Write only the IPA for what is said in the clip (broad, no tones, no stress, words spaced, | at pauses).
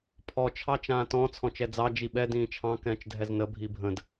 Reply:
pʰɔ t͡ʃʰɑt͡ʃãːtɔ̃ t͡sʰɔ̃t͡ʃɛd͡zɑ d͡ʒiɓɛ dĩːt͡ʃʰɑ̃ kɛ̃ːt͡ʃdʱɛznə bʱibʱə̃d